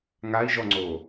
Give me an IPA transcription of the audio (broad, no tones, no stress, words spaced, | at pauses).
ŋai̯ʒɔŋ͡ǀo